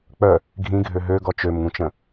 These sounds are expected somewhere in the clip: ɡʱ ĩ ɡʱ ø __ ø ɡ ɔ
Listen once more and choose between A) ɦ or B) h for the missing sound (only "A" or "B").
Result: A